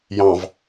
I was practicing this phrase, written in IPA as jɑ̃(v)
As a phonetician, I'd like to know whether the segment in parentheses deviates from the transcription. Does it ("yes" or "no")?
no